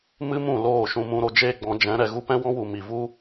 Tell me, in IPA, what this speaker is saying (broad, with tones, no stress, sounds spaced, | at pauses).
m ɨ˦ m ũ˦˨ l oː˦˨ ʃ ũ˧ m ũ˧ ɾ o˧ d͡ʒ eː˦ ɡ͡b ɔ̃˨˦ d͡ʒ ɛ̃˨˦ ɾ ɛ˨ ɣ u˦ p ɛ̃˦ w ɔ̃˦ w u˨ m i˨ v u˦